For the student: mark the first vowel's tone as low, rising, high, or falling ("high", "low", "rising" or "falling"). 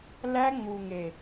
high